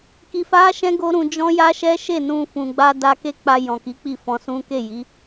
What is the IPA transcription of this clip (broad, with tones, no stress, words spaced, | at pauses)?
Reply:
ki˧fa˦ʃɛ̃˦ ɡo˦ɾũ˧d͡ʒɔ̃˦ ja˦ʃɛ˦ʃe˦˨nũ˧ fũ˨ɡ͡ba˧ da˧ke˦ k͡pa˧jɔ̃˨ki˨˦ k͡pi˦˨fɔ̃˧sũ˦ ke˦˨ji˨˦